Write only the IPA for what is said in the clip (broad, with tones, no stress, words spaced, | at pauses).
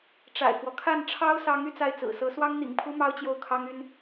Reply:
ʈ͡ʂa̰˨˩ɪ̯kwɔ˦ kʰa˥˩n ʈ͡ʂʰɑ˥ʊ̯sɑ˧˥ŋ y˥˧t͡sa˥˩ɪ̯t͡sɹ̩˨˩sɤ˧˥ swɑ˥ŋn̪ḭ˨˩ŋpʰu˥ mɑ˥ʊ̯t͡ɕjo˥˩ʊ̯kʰɑ˥ŋy˥n